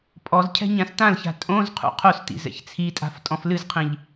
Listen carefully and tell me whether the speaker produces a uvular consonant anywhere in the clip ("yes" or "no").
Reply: yes